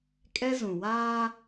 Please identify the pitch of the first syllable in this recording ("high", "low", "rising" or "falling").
high